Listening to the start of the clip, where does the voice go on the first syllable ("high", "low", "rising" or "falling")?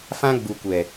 high